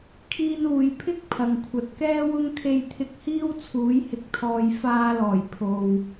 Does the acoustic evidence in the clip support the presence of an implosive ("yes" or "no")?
no